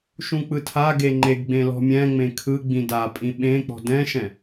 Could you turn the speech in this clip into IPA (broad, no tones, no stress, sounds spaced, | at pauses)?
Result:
ʃ ũ k͡p ɯ tʰ a ɡ e ŋ͡ǃ e ɡ ɡ͡b ẽ l ɔ̤ mʲ ɛ̃ ŋ͡m ẽ kʰ ɯ ɡ͡b ĩ d a pʼ ĩ ɓ ẽ k͡p ɔ̤ d ɛ̃ ʃ ɛ̃